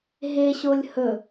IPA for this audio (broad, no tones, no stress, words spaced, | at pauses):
ɦeɕolʲ hɵ